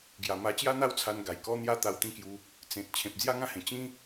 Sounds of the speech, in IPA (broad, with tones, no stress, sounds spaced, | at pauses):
ɡ j a˨˩ m a˧ t͡ɕ j a˦ n̪ a˦ w t͡sʰ a˧ n ɡ a˨˩ j k ɔ˦ n̪ j a˦ t̪ a˧ w t̪ ĩ˥˧ k j u˧ | t͡s ẽ˨ t̚ t͡ɕʰ ẽ˨ p̚ d͡z j a˦ ŋ ã˦ h ẽ˨˩ t͡ɕ ĩ˦